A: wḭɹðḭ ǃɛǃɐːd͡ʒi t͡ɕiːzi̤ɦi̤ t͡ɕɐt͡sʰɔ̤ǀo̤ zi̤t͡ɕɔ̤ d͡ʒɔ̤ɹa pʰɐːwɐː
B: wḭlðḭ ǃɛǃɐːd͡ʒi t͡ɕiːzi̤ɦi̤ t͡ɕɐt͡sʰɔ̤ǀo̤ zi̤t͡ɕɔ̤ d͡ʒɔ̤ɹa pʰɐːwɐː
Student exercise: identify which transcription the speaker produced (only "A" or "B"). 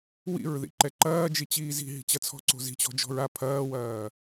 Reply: A